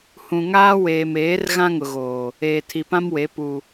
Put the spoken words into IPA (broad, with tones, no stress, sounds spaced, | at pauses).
h ũ˨ ŋ aː˦ w eː˨ m eː˨˦ r ɣ ã˦ ŋ ʊ˨ ɣ oː˨ | eː˨ tʰ i˨ p ã˦ m w e˨˦ p u˨